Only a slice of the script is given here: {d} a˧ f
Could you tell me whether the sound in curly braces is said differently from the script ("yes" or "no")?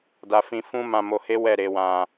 no